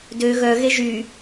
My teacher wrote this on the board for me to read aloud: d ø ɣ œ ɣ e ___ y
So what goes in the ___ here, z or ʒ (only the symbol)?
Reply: ʒ